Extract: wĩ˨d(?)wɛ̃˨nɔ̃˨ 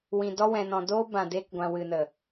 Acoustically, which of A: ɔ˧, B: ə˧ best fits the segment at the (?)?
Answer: A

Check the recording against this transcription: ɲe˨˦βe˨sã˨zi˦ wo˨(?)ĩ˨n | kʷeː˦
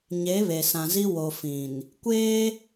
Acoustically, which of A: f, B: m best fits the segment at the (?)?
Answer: A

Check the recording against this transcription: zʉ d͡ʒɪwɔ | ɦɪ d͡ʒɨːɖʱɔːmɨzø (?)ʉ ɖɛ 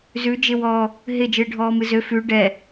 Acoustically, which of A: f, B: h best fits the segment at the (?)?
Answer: A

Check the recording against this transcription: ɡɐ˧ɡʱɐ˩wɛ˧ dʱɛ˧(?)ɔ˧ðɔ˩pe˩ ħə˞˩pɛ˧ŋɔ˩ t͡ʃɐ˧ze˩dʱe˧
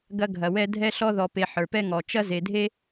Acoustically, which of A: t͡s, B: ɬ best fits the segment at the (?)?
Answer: B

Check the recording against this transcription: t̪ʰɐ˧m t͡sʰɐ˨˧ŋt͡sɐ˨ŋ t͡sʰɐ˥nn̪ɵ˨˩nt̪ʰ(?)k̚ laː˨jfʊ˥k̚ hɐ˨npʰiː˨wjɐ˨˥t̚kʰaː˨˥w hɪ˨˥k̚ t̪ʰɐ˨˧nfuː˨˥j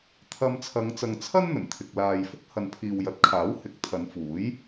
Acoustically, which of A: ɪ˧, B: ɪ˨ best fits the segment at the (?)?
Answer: B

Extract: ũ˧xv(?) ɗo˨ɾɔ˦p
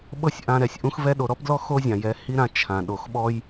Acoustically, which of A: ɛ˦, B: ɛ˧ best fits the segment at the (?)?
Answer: B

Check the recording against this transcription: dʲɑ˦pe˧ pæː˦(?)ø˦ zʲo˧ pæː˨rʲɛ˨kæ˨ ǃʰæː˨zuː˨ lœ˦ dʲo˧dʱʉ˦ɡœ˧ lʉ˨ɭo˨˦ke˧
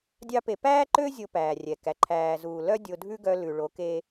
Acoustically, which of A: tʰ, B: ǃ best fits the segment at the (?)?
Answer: B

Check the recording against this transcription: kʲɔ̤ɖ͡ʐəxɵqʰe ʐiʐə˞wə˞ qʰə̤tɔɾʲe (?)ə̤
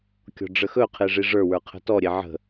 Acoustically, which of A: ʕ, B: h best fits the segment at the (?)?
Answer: A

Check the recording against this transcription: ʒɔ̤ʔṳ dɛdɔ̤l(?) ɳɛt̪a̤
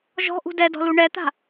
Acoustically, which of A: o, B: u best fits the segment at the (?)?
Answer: B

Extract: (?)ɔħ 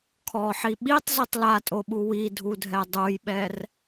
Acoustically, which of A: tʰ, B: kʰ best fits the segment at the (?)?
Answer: B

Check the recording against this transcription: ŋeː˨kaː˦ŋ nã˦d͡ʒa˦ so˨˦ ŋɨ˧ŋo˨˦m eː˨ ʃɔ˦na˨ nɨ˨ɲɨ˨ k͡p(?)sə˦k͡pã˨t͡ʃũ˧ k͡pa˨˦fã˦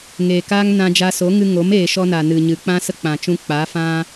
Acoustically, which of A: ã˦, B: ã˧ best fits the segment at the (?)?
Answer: A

